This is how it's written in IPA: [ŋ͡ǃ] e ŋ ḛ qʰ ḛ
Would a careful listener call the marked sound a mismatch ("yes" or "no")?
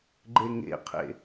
yes